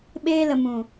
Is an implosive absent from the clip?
no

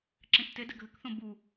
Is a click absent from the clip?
no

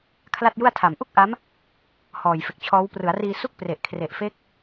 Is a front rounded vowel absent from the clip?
yes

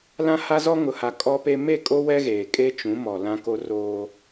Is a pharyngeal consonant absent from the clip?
yes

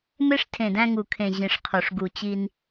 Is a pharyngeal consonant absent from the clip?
yes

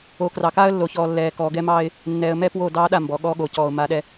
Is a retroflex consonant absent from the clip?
yes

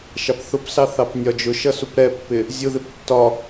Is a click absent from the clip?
yes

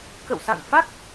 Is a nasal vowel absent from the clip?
yes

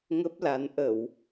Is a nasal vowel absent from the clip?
yes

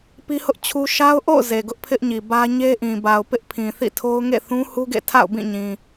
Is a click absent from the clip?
yes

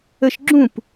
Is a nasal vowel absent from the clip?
no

